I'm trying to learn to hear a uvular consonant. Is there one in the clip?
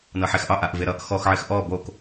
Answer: no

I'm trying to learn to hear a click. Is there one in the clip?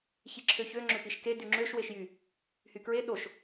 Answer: yes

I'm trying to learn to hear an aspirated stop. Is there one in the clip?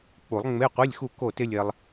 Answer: no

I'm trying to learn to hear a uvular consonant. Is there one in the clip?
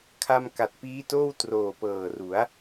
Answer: no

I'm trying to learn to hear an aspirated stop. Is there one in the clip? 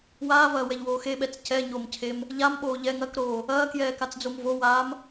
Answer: yes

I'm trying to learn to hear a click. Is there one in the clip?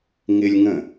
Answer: no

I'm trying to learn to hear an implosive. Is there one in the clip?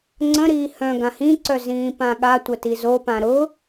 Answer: yes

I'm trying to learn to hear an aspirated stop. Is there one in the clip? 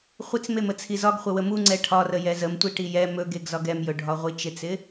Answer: yes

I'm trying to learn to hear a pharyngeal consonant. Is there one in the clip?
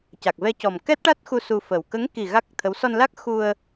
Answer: no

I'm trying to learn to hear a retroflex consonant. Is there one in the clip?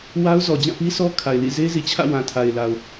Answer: no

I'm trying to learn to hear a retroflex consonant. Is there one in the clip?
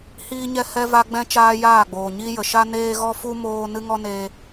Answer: no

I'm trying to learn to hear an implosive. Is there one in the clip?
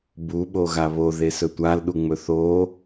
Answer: yes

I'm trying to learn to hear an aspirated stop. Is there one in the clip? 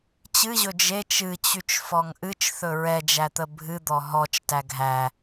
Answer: no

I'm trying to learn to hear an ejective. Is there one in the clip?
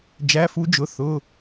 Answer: no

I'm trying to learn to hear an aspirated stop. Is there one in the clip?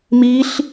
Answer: no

